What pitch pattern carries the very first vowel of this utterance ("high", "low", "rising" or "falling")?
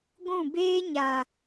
falling